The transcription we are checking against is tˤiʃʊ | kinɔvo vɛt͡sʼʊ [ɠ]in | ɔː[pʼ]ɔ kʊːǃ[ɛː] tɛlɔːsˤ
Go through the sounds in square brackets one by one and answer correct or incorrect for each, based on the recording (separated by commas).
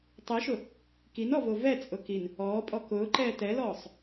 incorrect, correct, correct